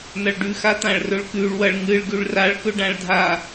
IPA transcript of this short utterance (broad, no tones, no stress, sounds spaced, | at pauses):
n̪ ɐ ɭ ɖ ʉ x a t̪ ã ɭ r ɵ ɭ k ʉ ɭ w ɐ ɭ ŋ ɨ ɭ ɡ ʉ ɭ r a ɭ k ɵ ɖ ã ɭ dʱ a